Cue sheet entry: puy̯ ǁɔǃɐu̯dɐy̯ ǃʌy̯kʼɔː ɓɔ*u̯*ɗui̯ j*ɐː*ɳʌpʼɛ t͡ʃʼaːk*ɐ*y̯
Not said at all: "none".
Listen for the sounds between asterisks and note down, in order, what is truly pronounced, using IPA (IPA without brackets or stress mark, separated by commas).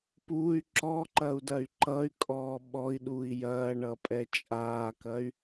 i̯, ɐː, ɐ